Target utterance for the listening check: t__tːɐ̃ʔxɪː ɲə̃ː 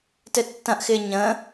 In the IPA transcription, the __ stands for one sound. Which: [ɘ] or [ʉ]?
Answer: ɘ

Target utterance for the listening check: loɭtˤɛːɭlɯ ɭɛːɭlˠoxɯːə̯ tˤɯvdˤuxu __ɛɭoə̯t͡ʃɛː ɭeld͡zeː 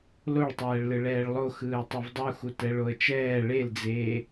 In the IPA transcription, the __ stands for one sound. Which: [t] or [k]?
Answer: t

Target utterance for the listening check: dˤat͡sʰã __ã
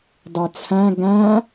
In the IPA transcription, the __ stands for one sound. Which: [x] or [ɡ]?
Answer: ɡ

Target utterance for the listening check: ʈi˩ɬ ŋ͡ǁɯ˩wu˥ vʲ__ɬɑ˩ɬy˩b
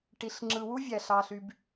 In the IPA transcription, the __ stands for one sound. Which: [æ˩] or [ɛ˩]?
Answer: æ˩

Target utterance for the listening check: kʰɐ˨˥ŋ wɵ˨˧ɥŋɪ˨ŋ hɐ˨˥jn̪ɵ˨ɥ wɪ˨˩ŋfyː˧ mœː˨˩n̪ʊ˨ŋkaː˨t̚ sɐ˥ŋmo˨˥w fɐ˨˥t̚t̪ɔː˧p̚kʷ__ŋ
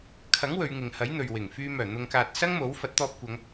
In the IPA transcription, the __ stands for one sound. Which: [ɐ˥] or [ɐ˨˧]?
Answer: ɐ˨˧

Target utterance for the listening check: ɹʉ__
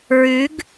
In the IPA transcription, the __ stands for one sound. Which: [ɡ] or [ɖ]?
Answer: ɡ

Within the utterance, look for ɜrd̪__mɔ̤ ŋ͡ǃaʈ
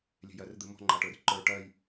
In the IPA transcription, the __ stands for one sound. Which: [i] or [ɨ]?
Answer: ɨ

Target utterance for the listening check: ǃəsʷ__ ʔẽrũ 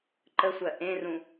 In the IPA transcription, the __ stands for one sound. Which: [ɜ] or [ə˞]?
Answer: ɜ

